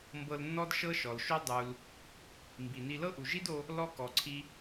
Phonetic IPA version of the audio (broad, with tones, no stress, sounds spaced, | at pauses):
m b ɤ˧ l nː ɔ˥ d ʃ ɤ˥ ʃ ɔ˩ l ʃ o˥ dˤ u˩ l | m b i˩ n i˧ l ɤ˥ ʔ u˩ ʒ i˥ d o˧ | l ɔ˥ k ɔ˩ ǀʰ i˧